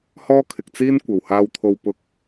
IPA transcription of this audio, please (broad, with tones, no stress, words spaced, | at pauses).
hɔː˥kʰɪ˨k̚t͡siː˥n kʷɐ˨˩whaː˧wt̪ʰo˧w pʊ˧k̚